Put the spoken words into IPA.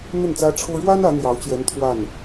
n̪ ə˥˩ n t͡s ä˥ ʈ͡ʂʰ ɤ˥ ɻ w a˥ n ä˧˥ n̪ j ɑ˧˥ ʊ̯ t͡ɕ j ɛ˧˥ n t̪ʰ w a˥˩ n

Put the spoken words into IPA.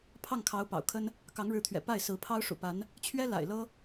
pʰ ɑ˥˩ ŋ kʰ ɑ˧˥ ʊ̯ p ɑ̰˨˩ ʊ̯ kʰ ə˥ n | k ɑ˧˥ ŋ ɻ ɻ̩˧˥ t̪ʰ ɥ ɛ̰˨˩ p a˥˩ ɪ̯ s ɹ̩˧˥ pʰ ɑ˥ ʊ̯ ʂ ṵ˨˩ p a˧˥ n | t͡ɕʰ ɥ ɛ˥ l a̰˨˩ ɪ̯ l ɤ˥

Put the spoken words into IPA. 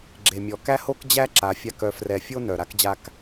ɡ͡ǁ e˨ mʲ ɔ˨ k æ˦ h o˦ k d͡ʑ æ˦ ǁ a˨˦ fʲ a˦˨ k œ˧ f r ɛ˨ fʲ o˦ n œ˨ ɾ a˦ k d͡ʑ a˦ k

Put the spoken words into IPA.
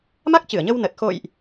m a˦˥ k̚ t͡ɕ ɨ˧˩ ə̯ ɲ ə˧ w n ə˨˩ t̚ x o̰˧˨ j ʔ

